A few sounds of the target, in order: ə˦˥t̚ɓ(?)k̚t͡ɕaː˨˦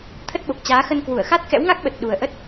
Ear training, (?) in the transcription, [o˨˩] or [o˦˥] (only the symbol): o˨˩